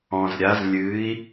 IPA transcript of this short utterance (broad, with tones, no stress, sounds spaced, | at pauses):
ɔ̃˧ z ɾʲ a˧˥ z lʲ ɨː˧˥ i̯